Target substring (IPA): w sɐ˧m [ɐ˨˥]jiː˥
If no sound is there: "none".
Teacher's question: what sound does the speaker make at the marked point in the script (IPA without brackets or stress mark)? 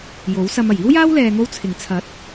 ɐ˨˩